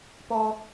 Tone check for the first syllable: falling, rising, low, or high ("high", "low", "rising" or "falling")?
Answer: high